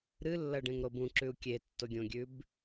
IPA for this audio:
ɾ ɨ lː ɐ ɖ ẽ ŋ ɾ o b ũ ǁ ʉ u̯ kʲ e tː o ɡʲ õ ɡʲ ʉ b

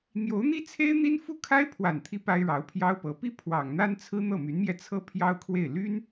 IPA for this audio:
n̪ j o˧˥ ʊ̯ n̪ i˥ t͡sʰ e˥ ɪ̯ n̪ i˥ n f u˥˩ kʰ a˥ ɪ̯ pʰ w a˨˩ n t̪ʰ i˧˥ p a˥ ɪ̯ ɻ ɑ˧˥ ʊ̯ pʰ j ɑ˥ ʊ̯ p ɤ˧˥ p i˥ pʰ w ɑ˨˩ ŋ n̪ a˥ n t͡sʰ ɹ̩˥ n̪ ɤ˥˩ m y˧˥ n m j ɛ˧ t͡sʰ ɤ˥ pʰ j ɑ˥ ʊ̯ kʰ w e˥˩ ɪ̯ l y˥ n

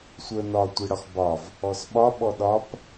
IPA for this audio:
sʷ ə n ɒ tʷ i ɽ ɒ x b ɒ v | ɔ s ɓ ɒ ɓ ɔ ɗ ɒ p

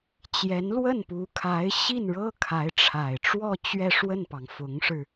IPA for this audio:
t͡ɕ j ɛ˧˥ n l w ə˥˩ n p u˧˥ kʰ a˧˥ ɪ̯ ɕ i˥˩ n ɻ ɤ˥ kʰ a˧˥ ɪ̯ ʈ͡ʂʰ a˨˩ ɪ̯ ʈ͡ʂ w ɔ˥˧ t͡ɕ ɥ ɛ˥˧ ʂ w ə˥˩ n p ɑ˩ ŋ f ʊ˧˥ ŋ ʂ ɻ̩˧

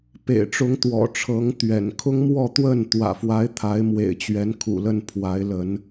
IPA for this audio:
p ḛ˨˩ ɪ̯ ʈ͡ʂ ʊ˨˦ ŋ t̪ w ɔ̰˨˩ ʈ͡ʂʰ ɤ˨˦ ŋ t̪ ɥ ɛ̰˨˩ n kʰ ʊ˦ ŋ m w ɔ˥˨ t̪ w ə˥˨ n t̪ w ä̰˨˩ f w a˨˦ ɪ̯ t̪ʰ a˨˦ ɪ̯ m w ḛ˨˩ ɪ̯ t͡ɕ ɥ ɛ˨˦ n kʰ ṵ˨˩ l ə˥˨ n pʰ w a˨˦ ɪ̯ l ə˨˦ n

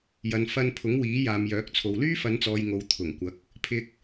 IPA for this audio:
j ɐ˨ n f ɐ˧ n pʰ ʊ˨˥ ŋ w iː˨˥ j aː˨ m j œː˨˥ k̚ t͡sʰ o˨ w l yː˥ f ɐ˨˧ n t͡s ɔː˨ j ŋ o˨ w t̪ʰ ʊ˨˩ ŋ kʷ ɐ˨˥ k̚ | pʰ ɪ˧ k̚

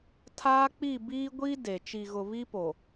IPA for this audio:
tʰ aː˦ k͡p i˦˨ b iː˦ ɡʷ i˦ d e˨ t͡ʃ i˨ ɣ ʊ˨ β i˦ p o˨

